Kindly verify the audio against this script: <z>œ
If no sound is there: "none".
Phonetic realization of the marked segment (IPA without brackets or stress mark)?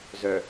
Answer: z